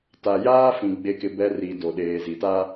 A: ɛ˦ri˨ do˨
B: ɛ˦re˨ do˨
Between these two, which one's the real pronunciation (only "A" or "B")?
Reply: A